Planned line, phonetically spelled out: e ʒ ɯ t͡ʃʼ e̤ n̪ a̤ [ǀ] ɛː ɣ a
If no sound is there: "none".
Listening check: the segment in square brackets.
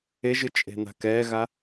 k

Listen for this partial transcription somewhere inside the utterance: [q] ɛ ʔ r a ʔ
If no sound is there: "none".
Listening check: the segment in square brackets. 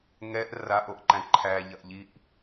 ŋ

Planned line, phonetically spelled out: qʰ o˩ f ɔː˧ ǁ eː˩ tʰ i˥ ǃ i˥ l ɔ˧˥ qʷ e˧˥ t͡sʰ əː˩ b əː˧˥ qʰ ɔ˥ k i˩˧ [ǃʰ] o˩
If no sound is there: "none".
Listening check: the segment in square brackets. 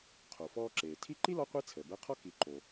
ǃ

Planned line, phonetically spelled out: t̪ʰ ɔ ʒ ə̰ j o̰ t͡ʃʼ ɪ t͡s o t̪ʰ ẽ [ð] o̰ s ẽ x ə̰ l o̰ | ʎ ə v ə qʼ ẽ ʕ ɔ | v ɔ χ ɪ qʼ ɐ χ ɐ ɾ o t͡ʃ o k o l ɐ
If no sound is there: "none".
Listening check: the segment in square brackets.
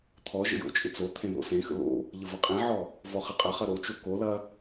ð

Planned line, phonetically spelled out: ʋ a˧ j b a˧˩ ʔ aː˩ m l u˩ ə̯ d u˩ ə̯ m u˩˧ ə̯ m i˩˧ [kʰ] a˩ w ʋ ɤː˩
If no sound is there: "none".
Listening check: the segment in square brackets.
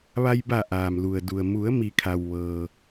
kʰ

